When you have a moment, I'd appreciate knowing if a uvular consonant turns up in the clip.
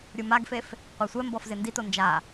yes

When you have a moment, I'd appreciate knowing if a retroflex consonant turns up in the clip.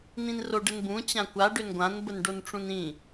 yes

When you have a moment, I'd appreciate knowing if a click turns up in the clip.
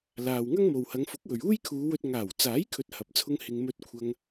no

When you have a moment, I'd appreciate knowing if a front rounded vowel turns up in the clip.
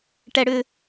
yes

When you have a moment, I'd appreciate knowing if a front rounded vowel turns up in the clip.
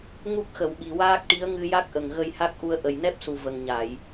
no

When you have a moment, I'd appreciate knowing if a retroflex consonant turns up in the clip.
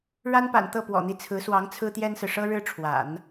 yes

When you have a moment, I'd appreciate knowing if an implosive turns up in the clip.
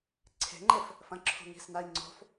no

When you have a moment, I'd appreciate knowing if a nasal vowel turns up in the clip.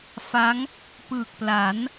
no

